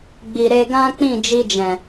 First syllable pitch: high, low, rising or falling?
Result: low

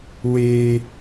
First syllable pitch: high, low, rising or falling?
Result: high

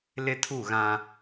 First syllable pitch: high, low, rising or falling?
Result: high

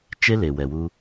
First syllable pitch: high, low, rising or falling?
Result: high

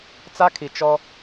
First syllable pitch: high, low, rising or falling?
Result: high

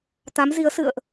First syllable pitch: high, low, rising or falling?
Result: rising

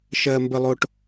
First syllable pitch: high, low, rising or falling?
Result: low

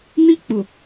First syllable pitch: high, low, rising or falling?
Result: high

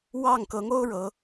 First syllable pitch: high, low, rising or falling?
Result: falling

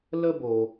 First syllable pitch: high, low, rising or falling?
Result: high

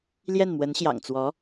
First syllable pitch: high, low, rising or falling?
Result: falling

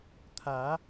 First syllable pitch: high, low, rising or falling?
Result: rising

